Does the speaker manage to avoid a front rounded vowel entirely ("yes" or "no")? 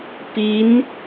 yes